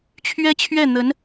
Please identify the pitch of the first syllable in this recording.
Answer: high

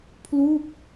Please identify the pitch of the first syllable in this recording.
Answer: falling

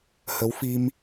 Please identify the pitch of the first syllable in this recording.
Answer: rising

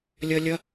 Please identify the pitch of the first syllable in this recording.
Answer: high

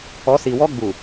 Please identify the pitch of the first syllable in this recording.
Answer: rising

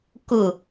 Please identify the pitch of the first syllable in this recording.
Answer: low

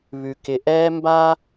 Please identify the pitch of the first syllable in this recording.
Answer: low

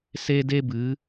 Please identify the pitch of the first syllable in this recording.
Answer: high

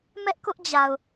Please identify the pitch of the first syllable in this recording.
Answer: high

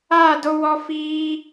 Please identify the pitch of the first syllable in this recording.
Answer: falling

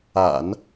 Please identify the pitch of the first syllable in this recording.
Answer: low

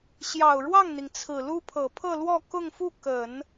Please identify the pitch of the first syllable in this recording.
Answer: low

